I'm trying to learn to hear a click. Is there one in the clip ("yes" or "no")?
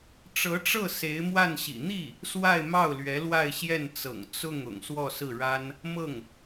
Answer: no